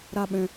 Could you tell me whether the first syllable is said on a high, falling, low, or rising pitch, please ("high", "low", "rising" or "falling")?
high